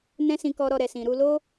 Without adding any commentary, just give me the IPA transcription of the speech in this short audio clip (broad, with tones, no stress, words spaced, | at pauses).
nɛ̃˧ sĩ˨kɔ˨ɾɔ˨ ɾɛ˨sĩ˨ɾu˧ lo˦